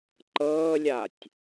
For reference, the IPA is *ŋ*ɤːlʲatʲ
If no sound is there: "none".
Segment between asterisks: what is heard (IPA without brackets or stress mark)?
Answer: ǃ